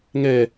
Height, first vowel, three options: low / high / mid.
mid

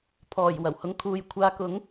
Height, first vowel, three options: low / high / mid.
mid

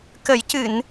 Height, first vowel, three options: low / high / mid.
mid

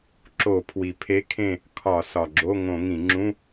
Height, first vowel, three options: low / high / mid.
mid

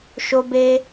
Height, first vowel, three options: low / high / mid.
mid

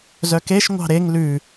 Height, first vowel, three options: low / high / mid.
mid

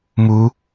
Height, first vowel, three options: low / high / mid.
high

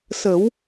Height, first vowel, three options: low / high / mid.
mid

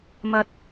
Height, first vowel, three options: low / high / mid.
low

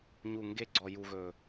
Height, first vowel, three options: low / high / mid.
high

